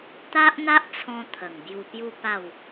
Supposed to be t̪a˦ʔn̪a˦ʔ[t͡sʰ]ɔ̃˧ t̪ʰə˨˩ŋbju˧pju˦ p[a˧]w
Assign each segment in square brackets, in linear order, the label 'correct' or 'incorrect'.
correct, incorrect: a˥˧

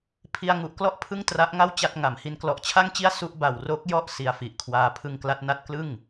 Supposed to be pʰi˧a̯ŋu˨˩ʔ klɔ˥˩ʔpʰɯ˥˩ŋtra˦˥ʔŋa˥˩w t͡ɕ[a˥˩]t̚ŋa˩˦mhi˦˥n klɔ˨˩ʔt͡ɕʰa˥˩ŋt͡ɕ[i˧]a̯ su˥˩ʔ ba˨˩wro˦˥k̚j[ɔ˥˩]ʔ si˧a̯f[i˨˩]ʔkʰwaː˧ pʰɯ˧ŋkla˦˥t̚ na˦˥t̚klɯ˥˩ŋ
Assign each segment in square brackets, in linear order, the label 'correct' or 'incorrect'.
correct, incorrect: i˥˩, correct, correct

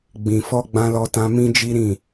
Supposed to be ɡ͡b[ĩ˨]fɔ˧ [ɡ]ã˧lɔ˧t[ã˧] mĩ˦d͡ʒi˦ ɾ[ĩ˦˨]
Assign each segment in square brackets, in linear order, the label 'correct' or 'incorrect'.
correct, incorrect: ɡ͡b, correct, correct

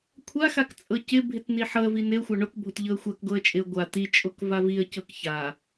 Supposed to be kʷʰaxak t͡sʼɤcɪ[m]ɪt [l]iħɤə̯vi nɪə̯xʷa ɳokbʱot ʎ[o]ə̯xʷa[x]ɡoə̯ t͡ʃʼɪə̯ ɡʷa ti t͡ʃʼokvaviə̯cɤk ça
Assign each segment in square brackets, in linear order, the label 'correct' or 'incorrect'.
incorrect: bʱ, incorrect: n̪, incorrect: ɤ, incorrect: k

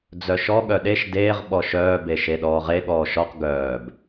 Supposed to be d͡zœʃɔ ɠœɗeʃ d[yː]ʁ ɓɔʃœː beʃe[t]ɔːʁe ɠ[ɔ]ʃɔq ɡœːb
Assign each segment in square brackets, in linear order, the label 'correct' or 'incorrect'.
incorrect: eː, incorrect: ɗ, incorrect: ɔː

